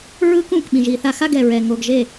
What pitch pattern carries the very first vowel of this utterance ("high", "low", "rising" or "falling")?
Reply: high